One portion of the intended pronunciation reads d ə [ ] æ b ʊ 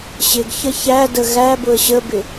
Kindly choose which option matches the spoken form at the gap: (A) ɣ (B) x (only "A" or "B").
A